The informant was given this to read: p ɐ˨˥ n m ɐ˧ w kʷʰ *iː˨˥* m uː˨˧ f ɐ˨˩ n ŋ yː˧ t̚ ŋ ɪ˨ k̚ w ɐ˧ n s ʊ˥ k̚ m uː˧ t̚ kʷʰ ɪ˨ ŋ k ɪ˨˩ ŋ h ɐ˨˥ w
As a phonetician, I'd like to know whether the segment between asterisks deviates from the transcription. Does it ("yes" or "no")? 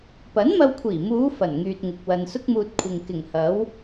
yes